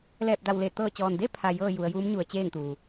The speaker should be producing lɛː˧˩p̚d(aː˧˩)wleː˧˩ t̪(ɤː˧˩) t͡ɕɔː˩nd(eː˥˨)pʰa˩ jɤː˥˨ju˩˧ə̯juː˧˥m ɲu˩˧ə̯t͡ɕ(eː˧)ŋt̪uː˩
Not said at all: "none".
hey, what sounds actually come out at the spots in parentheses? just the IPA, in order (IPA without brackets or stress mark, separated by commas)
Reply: a˧˩, ɤː˧˩, e˥˨, eː˥˨